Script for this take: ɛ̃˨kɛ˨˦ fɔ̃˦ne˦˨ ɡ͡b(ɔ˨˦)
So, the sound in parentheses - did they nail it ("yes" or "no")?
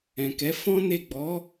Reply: yes